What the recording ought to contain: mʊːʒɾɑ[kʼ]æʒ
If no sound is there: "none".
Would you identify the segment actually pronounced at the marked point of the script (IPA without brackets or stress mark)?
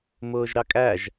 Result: kʼ